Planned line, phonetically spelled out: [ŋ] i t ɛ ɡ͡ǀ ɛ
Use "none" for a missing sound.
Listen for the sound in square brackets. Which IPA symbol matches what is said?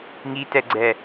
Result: ŋ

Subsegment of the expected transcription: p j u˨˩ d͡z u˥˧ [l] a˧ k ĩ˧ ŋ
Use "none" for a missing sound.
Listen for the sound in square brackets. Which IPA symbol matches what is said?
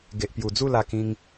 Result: l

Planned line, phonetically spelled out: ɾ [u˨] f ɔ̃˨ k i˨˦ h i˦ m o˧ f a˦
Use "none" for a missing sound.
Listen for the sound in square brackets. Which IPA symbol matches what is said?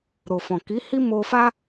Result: o˨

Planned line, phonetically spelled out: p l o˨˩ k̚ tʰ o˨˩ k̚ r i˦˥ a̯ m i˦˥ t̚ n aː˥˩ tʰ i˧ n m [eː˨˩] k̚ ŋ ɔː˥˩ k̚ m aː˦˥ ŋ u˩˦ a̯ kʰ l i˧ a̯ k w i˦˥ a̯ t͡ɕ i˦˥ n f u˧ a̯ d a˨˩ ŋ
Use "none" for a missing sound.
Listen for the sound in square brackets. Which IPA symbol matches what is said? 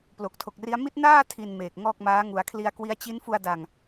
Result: eː˨˩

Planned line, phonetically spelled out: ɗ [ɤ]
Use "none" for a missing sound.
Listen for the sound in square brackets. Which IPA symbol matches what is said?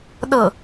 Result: ɤ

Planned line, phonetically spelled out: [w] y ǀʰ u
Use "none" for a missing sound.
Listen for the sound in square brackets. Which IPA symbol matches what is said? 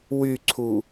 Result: w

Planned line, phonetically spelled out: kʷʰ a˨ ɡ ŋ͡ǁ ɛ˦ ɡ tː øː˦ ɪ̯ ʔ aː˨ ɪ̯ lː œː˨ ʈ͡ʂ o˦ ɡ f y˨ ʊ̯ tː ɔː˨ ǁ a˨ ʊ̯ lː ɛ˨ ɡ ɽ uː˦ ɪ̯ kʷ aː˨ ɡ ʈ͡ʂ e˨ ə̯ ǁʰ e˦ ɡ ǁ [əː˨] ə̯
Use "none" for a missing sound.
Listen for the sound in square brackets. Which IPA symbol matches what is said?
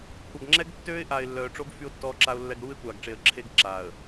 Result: aː˨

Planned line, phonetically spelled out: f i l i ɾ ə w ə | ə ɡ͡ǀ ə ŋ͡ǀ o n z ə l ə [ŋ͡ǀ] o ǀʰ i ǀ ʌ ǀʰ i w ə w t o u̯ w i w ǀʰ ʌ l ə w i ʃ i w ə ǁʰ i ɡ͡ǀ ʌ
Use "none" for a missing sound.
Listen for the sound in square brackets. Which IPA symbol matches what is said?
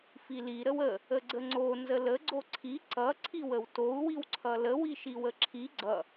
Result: ɡ͡ǀ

